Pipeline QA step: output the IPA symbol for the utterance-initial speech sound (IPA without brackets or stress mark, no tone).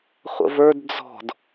χʷ